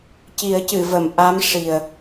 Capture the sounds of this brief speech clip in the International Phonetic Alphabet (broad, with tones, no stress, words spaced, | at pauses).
ci˨˩˦ə̯cɨ˨˩˨və˨˩˨m ʔa˧˥mʂi˨˩ə̯